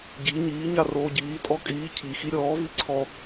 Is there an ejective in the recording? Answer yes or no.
yes